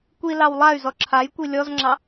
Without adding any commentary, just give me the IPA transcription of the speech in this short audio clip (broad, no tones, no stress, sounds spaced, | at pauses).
kʷ i l ɑ w lˠ a y̯ z ɔ ǁʰ a j kʷ i lʲ ɔ z ŋ͡ǁ ɑ